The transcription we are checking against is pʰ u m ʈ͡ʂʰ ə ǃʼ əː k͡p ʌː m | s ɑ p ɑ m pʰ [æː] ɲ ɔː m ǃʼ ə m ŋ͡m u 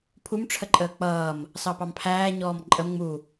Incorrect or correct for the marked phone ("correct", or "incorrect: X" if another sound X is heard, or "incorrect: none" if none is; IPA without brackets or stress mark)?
correct